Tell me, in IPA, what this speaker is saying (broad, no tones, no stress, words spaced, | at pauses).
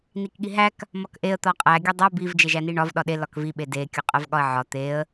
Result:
nikɠiɦæk | mɒkʔeə̯ t̪ɒqʼæ ɡʲodˤæ biv d͡ʒeʒæniɳɒv ɗɒɗe lɒkvi ɓede kʲuqʼævɠɒə̯ʕɒ t̪eə̯